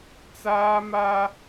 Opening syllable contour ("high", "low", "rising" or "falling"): high